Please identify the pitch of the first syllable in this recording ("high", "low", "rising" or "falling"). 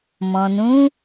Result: low